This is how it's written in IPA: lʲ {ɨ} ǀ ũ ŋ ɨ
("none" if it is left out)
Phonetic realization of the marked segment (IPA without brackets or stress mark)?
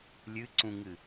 ɨ